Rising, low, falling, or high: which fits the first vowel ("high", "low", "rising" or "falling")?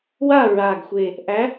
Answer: falling